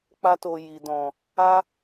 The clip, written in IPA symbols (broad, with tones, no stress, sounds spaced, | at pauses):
k͡p a˧ t o˨ j i˨ d ɔ̃˨ | a˦